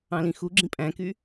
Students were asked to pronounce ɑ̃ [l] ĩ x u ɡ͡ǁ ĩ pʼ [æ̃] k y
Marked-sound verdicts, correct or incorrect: correct, correct

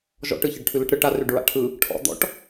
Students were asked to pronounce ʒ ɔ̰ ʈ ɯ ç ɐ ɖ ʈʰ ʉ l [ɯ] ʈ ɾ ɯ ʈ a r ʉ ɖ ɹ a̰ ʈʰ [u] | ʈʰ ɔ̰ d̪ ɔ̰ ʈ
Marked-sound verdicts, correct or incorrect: correct, incorrect

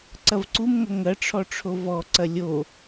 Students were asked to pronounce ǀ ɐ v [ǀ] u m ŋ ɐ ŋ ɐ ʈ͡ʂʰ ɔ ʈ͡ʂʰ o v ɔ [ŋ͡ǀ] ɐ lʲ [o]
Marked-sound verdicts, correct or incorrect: correct, incorrect, correct

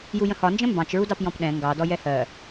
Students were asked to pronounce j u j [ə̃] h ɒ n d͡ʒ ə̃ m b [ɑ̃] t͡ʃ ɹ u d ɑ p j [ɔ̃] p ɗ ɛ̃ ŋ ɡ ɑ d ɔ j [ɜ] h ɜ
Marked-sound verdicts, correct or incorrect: correct, correct, correct, incorrect

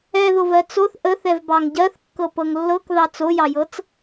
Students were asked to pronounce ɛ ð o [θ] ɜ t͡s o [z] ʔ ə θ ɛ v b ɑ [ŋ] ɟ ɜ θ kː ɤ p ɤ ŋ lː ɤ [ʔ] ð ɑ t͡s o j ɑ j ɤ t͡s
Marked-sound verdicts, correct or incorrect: incorrect, incorrect, correct, incorrect

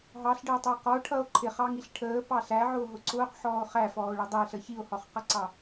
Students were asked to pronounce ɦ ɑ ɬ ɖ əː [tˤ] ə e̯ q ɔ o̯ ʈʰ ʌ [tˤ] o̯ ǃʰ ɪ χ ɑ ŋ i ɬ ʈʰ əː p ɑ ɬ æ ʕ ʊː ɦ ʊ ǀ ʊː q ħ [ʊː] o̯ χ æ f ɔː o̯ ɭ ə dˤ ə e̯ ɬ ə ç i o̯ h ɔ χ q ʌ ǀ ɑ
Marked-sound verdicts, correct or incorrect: correct, incorrect, incorrect

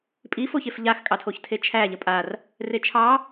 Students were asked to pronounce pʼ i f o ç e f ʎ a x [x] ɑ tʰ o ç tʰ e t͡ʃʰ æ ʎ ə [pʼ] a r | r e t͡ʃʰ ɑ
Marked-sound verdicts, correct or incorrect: incorrect, correct

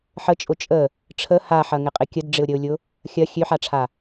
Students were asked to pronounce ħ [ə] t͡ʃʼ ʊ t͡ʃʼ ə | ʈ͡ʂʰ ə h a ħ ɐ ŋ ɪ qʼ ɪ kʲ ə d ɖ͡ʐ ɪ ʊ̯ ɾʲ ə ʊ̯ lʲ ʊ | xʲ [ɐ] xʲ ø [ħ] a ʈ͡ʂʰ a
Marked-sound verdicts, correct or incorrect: correct, correct, correct

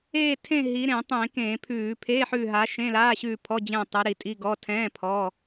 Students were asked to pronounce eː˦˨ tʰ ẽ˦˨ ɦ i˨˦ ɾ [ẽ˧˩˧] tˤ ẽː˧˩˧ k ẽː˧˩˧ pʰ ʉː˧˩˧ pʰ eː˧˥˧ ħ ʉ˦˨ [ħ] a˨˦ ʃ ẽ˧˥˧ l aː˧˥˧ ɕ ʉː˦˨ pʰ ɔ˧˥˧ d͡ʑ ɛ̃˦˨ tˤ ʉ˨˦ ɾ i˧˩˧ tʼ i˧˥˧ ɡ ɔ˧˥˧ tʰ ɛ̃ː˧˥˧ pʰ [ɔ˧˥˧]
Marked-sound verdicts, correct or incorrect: correct, incorrect, correct

